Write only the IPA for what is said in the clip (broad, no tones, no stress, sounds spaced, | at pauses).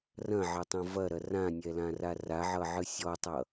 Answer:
r ɐ̃ ʕ ɐ tˤ ɐ̃ v ɐ ɾ ɐ r ã nʲ ɛ l ã r a r a ʕ ʌ ʕ ɨ sʲ ɔ tˤ ʌ